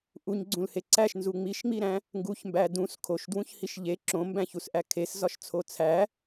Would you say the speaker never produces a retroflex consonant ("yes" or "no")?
yes